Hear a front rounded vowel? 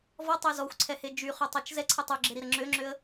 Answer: yes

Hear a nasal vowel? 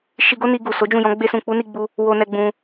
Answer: yes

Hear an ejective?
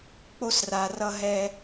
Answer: no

